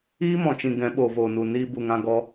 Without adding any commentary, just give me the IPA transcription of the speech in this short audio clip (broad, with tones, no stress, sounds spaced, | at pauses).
iː˦ m ɔ̃˨ t͡ʃ ĩ˨ ɡ ɛ̃˨˦ ɓ oː˨ v oː˨ n u˨ n iː˧ b u˨ ŋ ã˧ ɡ ɔ˧